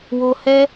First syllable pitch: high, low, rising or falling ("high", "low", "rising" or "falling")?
low